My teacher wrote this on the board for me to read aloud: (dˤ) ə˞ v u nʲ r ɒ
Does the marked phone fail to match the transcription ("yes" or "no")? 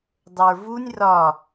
no